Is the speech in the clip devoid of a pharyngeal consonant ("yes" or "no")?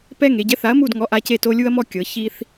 yes